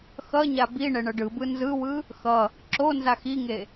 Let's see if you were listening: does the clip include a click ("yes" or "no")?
yes